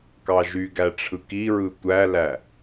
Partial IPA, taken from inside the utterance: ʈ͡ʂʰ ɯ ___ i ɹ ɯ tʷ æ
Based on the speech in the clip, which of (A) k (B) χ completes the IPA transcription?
A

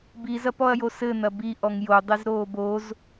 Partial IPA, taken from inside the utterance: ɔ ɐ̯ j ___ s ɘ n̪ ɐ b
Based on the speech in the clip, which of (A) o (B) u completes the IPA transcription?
A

